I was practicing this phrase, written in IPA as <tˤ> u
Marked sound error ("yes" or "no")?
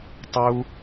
no